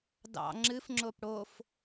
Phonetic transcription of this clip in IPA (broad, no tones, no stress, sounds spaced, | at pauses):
d ɑ̰ ŋ͡ǁ ɨ f ŋ͡ǁ o p ɽ o f